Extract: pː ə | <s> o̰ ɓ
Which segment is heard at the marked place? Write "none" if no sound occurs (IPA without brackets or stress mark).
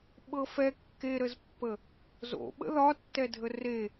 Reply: z